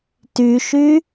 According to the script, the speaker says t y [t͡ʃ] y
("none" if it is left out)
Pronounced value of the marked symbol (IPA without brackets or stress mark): ʃ